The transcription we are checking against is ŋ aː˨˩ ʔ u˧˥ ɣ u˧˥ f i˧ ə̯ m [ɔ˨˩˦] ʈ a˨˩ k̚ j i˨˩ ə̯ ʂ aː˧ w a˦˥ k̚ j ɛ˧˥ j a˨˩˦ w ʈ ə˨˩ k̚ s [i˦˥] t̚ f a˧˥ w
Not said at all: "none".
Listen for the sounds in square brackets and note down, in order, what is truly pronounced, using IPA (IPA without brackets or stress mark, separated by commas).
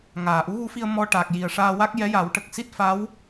ɔ˧, i˦˥